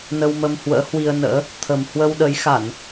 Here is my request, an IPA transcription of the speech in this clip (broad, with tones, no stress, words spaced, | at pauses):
nə˧wmə˧m hwə̰ː˧˥hwi˧ə̯nə̰ː˧˥ | t̪ʰə˨˩m hwə˧wɗə˨˦jxa˧˩˨n